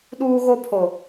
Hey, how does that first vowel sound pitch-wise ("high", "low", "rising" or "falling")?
high